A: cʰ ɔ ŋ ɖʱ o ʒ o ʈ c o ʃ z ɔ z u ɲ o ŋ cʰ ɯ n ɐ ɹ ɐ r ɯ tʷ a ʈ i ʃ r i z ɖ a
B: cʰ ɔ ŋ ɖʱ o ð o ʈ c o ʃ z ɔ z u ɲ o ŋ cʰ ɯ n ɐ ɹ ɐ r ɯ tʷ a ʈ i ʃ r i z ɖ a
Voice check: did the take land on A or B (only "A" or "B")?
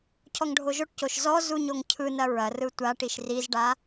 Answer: A